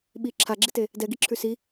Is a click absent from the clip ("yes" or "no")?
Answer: no